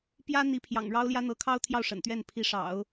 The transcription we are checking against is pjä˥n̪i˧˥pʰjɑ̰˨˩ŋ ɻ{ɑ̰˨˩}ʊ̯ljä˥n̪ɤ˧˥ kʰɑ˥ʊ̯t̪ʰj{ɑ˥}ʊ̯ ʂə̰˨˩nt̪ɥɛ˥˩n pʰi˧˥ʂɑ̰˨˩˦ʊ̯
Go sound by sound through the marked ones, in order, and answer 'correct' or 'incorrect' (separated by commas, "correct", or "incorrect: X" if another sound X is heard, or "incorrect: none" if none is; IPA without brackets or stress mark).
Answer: incorrect: ɑ˥, incorrect: ɑ˥˩